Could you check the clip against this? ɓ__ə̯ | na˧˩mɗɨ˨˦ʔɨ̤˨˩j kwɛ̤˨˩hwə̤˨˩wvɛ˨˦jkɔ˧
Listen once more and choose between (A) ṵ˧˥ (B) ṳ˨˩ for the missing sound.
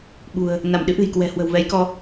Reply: B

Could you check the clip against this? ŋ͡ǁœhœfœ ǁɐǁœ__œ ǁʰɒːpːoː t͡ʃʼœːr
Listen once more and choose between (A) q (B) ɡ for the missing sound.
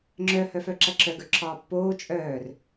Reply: B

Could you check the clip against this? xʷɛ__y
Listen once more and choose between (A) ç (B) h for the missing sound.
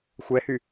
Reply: B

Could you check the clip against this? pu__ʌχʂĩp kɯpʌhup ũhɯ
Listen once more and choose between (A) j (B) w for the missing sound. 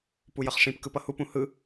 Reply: A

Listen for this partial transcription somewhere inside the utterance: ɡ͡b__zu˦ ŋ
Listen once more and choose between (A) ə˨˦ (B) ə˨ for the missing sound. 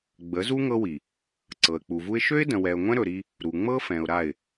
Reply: A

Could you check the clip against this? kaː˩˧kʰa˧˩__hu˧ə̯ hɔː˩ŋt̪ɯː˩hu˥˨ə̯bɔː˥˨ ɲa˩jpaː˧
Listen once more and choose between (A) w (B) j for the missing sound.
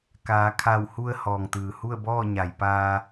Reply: A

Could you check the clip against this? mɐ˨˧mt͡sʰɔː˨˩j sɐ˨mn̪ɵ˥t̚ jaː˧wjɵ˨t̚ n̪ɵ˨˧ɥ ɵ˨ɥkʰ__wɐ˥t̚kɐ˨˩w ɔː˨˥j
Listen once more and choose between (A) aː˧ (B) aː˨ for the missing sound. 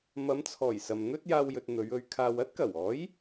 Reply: B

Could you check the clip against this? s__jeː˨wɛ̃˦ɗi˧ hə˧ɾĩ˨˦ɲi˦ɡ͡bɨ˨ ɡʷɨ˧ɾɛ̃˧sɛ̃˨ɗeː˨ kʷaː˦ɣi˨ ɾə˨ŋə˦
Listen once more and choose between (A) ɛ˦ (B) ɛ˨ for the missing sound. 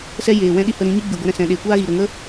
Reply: A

